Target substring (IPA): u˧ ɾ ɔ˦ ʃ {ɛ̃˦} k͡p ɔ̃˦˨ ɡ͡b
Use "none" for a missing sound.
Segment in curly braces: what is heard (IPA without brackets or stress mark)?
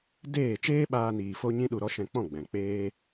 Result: ɛ̃˧